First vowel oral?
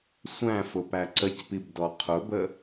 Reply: no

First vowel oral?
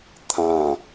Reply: no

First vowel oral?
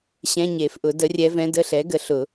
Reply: no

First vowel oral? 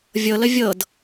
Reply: yes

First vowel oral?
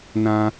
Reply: no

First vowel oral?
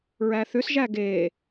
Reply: yes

